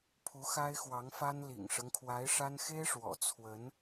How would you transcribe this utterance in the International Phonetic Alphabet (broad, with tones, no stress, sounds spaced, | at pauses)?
pʰ u˧˥ x a˥ ɪ̯ x w ɑ˧˥ ŋ f a˥ n l ḭ˨˩ ŋ ʂ ɤ˦ ŋ kʰ w a˧˥ ɪ̯ ʂ a˥ n x e˥ ɪ̯ ʂ w ɔ̰˨˩ t͡sʰ w ə˧˥ n